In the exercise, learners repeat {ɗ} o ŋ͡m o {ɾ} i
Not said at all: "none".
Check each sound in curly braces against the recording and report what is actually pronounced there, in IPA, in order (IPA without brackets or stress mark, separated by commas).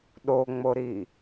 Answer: ɗ, ɾ